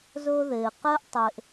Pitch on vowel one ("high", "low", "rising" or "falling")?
high